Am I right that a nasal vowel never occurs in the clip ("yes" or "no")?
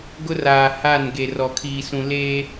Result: no